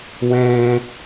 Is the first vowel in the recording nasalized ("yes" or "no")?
yes